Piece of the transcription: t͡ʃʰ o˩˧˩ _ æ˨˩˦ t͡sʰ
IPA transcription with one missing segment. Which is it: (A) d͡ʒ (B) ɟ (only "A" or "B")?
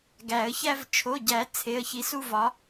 B